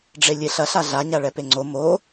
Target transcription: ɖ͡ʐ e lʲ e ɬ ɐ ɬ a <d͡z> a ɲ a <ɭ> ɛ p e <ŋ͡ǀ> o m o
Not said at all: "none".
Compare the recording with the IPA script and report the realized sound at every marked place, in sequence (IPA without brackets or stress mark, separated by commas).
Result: ɮ, ɭ, ŋ͡ǀ